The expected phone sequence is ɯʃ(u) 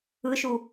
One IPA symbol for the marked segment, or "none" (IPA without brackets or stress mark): u